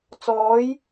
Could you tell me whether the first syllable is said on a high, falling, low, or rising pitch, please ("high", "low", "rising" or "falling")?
rising